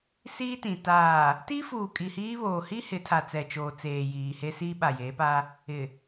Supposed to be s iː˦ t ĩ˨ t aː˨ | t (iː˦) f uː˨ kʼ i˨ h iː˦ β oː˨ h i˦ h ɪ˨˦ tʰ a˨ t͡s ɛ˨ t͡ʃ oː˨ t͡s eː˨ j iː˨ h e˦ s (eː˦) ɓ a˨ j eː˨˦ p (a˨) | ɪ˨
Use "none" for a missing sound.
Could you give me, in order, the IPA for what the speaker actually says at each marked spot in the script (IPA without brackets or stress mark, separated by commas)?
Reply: i˦, iː˦, a˦